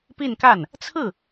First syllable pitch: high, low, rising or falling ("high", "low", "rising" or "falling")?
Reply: falling